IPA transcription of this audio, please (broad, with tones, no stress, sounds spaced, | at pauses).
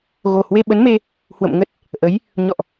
ɣ o˨˩ h w e˧ ɓ ə˨˦ n m e˧ | h w ə̰˧˨ m ŋ ə˦˥ t̚ | ʔ ə˨˦ j | ɲ ɔ̰˧˨ ʔ